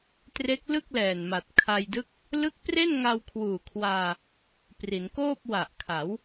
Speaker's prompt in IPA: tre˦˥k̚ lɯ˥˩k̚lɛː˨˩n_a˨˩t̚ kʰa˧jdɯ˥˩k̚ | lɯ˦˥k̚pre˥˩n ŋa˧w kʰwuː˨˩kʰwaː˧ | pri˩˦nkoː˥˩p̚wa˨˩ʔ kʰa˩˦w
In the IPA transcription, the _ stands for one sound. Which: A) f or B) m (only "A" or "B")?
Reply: B